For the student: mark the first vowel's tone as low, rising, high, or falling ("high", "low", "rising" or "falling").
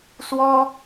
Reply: high